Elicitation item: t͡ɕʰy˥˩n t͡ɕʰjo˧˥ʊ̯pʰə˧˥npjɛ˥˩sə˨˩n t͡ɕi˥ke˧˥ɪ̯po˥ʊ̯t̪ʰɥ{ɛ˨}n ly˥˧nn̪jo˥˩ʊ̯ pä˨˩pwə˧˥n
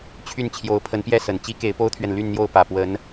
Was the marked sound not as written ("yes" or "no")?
no